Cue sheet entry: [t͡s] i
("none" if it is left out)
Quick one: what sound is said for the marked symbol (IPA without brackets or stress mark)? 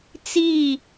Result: t͡s